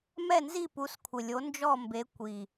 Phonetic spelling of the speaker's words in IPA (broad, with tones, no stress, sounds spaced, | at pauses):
m ɛ˦˨ n z i˦˨ p u˨˦ s kʷʰ ɪ˨˩ lʲ o˨˦ n d͡ʒ ɔ˦˨ m b e˨˦ kʷ i˨˩